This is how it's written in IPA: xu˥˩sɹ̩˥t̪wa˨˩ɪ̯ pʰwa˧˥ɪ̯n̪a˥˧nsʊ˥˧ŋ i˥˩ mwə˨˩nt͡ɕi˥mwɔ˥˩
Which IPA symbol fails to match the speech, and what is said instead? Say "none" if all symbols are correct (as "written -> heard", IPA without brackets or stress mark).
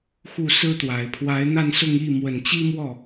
none